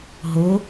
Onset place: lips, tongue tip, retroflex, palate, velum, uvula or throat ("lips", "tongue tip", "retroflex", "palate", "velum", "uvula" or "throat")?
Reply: throat